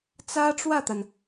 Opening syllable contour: high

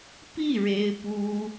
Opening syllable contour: falling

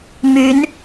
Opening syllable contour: rising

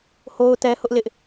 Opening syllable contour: high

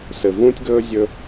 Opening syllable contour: low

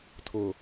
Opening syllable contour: low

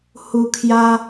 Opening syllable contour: low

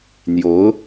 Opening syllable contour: rising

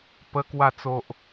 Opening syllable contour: high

